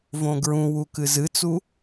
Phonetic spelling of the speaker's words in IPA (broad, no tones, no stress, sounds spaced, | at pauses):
v õ ɡ ɹ ũ w u k ɨ z ɨ t͡s u